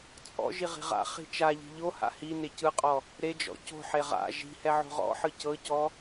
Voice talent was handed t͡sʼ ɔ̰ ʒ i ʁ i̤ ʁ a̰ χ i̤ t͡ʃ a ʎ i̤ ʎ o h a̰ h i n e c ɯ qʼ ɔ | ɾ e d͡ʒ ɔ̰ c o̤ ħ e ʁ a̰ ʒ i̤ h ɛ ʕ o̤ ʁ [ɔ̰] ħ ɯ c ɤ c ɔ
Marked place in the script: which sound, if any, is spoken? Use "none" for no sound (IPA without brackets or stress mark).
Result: ɔ̰